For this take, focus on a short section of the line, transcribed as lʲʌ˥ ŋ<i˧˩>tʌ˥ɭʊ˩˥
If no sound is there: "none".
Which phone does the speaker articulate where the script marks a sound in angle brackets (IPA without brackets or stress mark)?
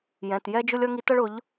i˧˥